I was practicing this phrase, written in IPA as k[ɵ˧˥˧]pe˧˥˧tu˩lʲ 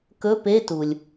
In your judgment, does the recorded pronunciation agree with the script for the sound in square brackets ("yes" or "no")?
yes